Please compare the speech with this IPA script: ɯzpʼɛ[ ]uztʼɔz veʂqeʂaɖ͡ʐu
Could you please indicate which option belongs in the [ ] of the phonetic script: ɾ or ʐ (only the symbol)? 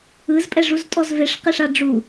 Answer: ʐ